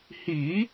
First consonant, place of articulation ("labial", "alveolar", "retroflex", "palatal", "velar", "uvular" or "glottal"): glottal